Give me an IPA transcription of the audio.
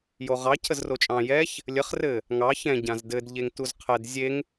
j o ʁ ɑ cʰ ə z r o t͡ʃʼ ɑ̃ j ɛ ç | lʲ ə χ r ɘ | ŋ ɑ ç ɛ̃ ɟ ã z d ɘ d ʎ e ŋ t u z qʰ ɛ d zʲ e ŋ

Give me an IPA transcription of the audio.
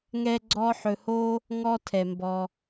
ŋ ɛ˥ ɡ͡ǀ ɔ˥ ħ ɵ˧ h o˥ | ŋ ɔ˥ tʰ ɛ˩ m b ɔ˩

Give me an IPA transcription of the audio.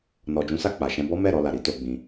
n ɔ˨ d͡ʒ ũ˨˦ s a˧ k͡p a˨ ʃ ɛ̃˧ b ɔ˦ m ɛ˦˨ ɾ ɔ˧ l a˨ ɾ i˨˦ t o˧ ɡ͡b ĩ˧

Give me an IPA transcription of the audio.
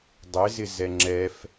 dˤ ɪ z ɪ z ɛ ŋ͡ǁ ɛ f

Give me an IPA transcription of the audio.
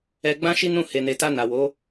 ɛ˧ ɡ͡b ã˦ ʃ i˦ n ũ˦˨ h e˨ n e˨ t a˧ n a˨ w o˨˦

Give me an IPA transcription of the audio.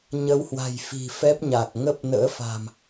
ɲ ə˨˦ w h w a̤˨˩ j f i̤˨˩ f ɛ˦˥ p̚ ɲ a˨˩ k̚ ŋ ə˦˥ p̚ n ə̰ː˧˥ f a̤˨˩ m

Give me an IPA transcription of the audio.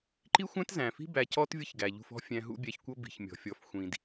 ǃ i˦ xʷ æ̃˦ t z æ̃˨ f i̤˦ b æ˧ c ɔ˦ t vʲ ʌ˦ ç ɡ æ˨ ʎ ṳ˧ f ɔ̤˦ fʲ æ̃˧ ɦ ṵ˦ bʲ æ˧ ç kʷ ʌ˦ b i̤˨ ç mʲ ɔ̤˨ fʲ ɔ˨˦ f xʷ ĩ˨ d

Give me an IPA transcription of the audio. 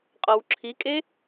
qʼ ɔ w ǁʰ i kʼ e

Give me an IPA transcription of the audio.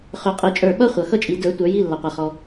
χ ø˨˩˦ qʼ i˨˩˦ t͡ʃʼ ə˞˧˩ ɓ ʌ˥ χʷ ʌ˩ x ʌ˥ t͡ʃʼ i˨˩˦ d ə˞˨˩˦ tʷ ə˞˨˩˦ j i˧˥˧ lː a˩ qʷ a˩ χ ɔ˩

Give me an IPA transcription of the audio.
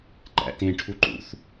ǃ æ̰ t ẽ ʈʰ u ǃ ṵ θ

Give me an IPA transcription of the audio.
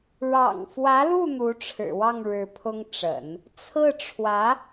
ɻ ɑ̰˨˩ ŋ f w ä˧˥ l u˥˩ n̪ u˧˥ ʈ͡ʂʰ ɻ̩˨˩ w ɑ˥˩ ŋ ɻ ɻ̩˧˥ pʰ ʊ˥ ŋ ʈ͡ʂ ə̰˨˩˦ n | t͡sʰ ɹ̩˥˩ ʈ͡ʂʰ w ä˧˥

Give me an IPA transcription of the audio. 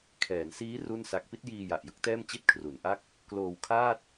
kʰ ɛː˩˦ n s iː˦˥ r u˥˩ n s a˦˥ k̚ p i˦˥ t̚ j iː˧ j a˨˩ ʔ j ɯ˦˥ k̚ t ɛː˥˩ m t͡ɕ i˥˩ t̚ kʰ r u˩˦ n ʔ a˥˩ k̚ | k l oː˧ w kʰ aː˥˩ t̚

